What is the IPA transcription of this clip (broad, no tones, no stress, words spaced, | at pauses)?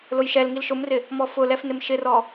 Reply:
lʊjʃɛlŋil ʃʊmrɪ | mɔfʊlɛf nɪmʃɪrɔ